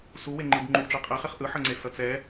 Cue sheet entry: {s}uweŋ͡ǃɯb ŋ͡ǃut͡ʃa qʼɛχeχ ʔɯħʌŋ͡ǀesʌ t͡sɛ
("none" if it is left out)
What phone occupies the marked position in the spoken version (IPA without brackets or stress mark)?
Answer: s